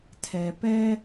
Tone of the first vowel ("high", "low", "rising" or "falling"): low